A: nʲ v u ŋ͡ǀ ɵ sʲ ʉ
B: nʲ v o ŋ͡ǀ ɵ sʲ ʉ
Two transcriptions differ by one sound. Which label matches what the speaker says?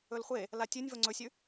B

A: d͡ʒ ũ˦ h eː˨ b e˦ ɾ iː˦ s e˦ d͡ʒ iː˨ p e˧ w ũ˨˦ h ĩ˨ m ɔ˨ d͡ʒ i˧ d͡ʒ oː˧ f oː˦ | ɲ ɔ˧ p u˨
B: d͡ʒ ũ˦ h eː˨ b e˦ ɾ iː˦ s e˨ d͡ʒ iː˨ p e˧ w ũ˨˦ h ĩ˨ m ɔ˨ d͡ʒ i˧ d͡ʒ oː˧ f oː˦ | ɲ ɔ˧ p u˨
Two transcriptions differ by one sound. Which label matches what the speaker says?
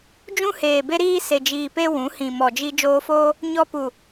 B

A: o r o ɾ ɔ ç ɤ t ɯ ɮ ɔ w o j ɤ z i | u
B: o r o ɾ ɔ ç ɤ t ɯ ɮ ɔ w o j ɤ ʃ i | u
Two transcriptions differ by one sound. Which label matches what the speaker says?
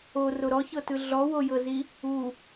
A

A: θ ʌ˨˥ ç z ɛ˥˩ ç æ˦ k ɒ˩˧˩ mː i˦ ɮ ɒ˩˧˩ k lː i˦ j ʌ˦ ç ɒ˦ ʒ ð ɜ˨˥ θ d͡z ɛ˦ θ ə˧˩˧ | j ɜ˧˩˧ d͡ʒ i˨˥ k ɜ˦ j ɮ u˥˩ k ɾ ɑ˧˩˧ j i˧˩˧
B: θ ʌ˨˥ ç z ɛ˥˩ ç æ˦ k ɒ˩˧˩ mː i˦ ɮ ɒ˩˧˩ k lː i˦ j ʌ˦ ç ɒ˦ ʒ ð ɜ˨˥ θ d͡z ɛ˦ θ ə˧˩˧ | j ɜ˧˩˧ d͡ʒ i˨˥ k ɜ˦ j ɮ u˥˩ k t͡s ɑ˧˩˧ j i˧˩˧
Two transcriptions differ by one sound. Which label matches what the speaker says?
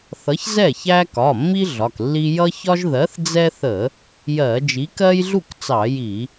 B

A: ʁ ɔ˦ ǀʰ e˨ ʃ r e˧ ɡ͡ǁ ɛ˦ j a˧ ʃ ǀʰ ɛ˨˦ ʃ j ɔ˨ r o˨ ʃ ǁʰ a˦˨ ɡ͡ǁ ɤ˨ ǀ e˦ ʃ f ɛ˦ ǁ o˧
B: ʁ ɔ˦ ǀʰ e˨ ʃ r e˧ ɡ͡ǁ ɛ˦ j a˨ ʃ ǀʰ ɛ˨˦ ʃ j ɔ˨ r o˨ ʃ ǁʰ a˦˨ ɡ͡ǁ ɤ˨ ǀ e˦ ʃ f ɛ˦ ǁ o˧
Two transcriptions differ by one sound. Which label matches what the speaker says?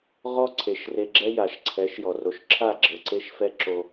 B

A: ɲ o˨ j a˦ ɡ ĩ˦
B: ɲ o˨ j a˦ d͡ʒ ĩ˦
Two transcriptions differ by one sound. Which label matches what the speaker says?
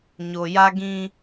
A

